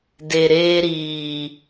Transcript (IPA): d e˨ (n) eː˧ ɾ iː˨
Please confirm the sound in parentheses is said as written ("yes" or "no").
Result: no